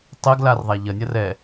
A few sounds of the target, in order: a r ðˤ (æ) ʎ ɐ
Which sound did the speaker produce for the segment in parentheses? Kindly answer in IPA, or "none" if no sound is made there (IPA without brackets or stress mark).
æ